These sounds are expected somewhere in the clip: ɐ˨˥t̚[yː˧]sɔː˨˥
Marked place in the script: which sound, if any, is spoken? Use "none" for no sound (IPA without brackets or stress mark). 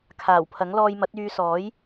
yː˧